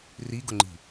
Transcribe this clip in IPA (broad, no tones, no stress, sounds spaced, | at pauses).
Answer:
r i ɡ ʊ ŋ͡ǃ i̤